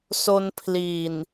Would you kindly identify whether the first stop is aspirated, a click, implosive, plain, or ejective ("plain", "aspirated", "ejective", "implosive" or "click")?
aspirated